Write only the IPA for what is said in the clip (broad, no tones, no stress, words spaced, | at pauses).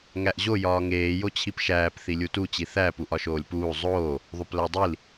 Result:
ŋæʔʑo jɒːŋeː jot͡ɕʰipʃæːp θilʲutu t͡ɕiθæ puʔɒʃoːlʲpuː zˤoː | ðˤoplædˤil